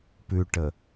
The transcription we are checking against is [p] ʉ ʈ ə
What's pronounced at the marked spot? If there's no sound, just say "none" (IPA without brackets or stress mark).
p